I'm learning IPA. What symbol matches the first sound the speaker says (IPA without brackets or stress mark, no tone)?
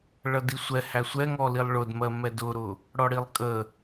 ɭ